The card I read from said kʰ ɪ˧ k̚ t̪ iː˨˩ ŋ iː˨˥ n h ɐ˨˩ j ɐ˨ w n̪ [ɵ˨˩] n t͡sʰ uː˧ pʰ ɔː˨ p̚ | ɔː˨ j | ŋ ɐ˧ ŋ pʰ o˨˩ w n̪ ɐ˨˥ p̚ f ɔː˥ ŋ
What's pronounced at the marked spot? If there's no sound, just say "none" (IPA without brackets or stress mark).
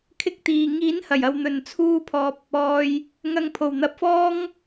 ɵ˨˩